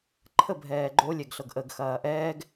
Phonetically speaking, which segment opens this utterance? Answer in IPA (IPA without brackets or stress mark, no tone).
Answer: ǃʰ